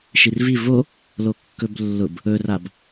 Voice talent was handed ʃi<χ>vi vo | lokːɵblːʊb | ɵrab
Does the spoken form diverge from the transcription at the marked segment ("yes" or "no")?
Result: yes